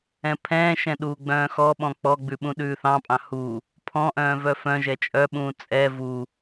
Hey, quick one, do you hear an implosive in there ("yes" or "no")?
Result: yes